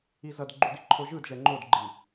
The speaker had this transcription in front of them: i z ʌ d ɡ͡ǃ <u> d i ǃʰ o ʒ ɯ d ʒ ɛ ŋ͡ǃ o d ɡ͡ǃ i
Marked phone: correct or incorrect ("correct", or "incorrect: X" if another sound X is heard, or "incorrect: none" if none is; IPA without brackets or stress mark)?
correct